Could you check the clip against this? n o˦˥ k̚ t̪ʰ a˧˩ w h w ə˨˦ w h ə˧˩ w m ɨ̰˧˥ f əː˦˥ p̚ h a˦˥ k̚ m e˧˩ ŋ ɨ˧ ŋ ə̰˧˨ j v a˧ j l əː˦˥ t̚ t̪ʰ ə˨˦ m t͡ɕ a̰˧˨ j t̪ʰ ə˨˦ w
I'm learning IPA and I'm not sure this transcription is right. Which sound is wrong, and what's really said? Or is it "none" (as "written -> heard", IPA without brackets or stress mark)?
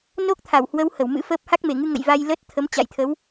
none